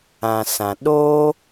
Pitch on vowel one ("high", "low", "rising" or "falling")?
low